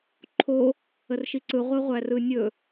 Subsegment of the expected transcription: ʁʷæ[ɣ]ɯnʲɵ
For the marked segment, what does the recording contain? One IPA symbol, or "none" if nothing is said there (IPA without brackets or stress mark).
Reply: r